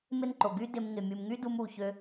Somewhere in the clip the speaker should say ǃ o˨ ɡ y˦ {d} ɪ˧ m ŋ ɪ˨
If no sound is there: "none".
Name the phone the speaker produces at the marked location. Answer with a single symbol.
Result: d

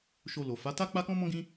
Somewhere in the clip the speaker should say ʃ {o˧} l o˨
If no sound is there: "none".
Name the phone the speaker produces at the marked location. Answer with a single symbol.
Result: o˧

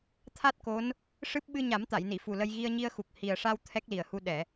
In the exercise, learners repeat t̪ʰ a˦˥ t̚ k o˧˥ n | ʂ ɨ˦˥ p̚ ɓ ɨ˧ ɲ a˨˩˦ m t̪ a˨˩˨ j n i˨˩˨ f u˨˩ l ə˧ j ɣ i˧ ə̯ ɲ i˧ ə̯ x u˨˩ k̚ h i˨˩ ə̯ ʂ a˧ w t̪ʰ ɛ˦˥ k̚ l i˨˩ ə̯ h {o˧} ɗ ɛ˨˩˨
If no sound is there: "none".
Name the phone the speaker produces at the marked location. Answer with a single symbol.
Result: u˧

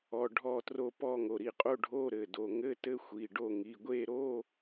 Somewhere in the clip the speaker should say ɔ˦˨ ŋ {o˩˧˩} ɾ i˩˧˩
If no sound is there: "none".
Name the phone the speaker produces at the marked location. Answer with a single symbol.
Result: o˩˧˩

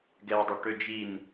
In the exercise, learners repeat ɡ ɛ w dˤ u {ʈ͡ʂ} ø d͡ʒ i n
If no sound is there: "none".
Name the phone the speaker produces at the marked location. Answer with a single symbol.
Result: ʈ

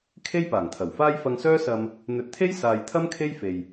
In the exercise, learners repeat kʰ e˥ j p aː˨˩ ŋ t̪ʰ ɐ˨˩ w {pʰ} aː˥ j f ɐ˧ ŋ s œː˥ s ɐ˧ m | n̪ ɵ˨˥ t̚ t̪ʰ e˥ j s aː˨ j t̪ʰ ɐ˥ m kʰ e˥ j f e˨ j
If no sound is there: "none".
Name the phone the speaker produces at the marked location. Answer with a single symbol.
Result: f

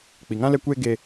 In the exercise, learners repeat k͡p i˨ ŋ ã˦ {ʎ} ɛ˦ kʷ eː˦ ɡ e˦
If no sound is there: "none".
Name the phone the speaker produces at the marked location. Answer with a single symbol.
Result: l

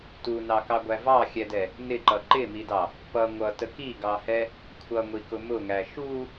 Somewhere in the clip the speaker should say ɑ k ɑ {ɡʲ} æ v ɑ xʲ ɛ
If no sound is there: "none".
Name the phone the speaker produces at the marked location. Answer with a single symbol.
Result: ɡʷ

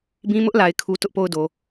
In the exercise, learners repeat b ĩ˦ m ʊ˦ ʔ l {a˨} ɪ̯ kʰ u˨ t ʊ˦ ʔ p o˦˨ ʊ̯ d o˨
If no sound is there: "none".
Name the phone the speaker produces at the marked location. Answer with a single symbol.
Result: a˨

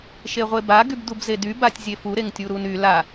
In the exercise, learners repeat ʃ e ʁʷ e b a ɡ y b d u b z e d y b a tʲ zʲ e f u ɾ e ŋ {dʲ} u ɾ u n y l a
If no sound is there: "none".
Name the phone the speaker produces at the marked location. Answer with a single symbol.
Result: tʲ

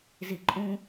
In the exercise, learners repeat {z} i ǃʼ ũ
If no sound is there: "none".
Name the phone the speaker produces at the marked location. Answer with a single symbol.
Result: z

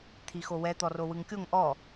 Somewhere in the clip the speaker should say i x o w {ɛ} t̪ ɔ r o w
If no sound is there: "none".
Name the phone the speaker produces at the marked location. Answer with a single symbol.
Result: ɛ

